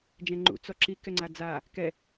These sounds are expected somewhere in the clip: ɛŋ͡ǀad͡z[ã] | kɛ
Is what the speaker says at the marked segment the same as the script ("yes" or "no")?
no